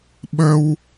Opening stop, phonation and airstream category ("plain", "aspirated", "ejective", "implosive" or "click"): implosive